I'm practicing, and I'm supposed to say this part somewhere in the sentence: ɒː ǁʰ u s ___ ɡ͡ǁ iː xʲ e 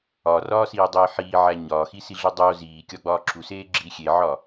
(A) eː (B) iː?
A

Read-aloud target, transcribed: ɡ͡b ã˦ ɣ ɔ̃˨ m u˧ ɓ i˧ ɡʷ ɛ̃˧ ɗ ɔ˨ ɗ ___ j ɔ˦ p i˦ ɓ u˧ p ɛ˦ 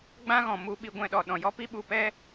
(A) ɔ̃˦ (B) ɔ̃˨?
B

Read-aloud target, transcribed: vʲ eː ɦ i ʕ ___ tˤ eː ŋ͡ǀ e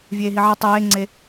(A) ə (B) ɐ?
B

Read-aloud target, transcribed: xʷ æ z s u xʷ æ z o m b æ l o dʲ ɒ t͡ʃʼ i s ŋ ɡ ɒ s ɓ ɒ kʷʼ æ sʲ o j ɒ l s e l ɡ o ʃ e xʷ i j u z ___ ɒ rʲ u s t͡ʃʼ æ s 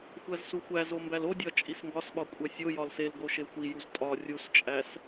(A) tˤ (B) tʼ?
B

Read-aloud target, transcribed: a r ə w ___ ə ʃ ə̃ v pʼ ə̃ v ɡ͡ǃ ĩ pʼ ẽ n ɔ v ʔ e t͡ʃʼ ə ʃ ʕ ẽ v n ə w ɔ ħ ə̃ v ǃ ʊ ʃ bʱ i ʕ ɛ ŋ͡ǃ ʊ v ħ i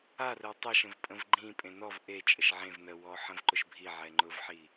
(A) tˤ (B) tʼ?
A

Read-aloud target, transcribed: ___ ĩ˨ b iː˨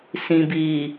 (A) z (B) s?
B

